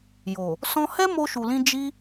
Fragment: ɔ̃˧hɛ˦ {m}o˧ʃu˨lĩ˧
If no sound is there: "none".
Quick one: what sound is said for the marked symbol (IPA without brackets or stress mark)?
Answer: m